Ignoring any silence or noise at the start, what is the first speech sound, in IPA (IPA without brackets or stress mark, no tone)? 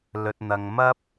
l